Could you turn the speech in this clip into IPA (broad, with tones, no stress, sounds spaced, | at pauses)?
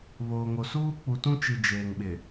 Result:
β oː˨ ŋ o˨ s uː˦ k͡p u˨ t ũ˦ t͡ʃ i˨ d͡ʒ eː˨ ŋ ɓ ɪ˨